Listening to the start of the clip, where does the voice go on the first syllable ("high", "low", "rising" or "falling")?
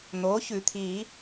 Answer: rising